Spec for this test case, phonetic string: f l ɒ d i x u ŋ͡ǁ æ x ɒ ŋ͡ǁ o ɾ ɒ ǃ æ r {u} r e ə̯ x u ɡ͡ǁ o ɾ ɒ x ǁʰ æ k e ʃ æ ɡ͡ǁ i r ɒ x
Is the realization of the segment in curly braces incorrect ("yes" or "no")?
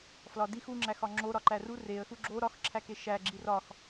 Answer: no